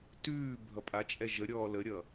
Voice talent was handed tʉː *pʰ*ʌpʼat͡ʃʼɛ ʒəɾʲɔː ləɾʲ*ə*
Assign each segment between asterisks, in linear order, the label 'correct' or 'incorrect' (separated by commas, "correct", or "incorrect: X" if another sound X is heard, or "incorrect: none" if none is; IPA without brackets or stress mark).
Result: incorrect: bʱ, incorrect: ʌ